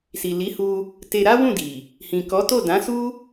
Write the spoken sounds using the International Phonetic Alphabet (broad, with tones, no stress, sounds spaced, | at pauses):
s i˨ l i˨˦ h u˧ | t e˧ ɾ a˦ w ũ˦˨ d i˨ | h ĩ˨ k ɔ˨˦ t o˦˨ d ã˨˦ s u˦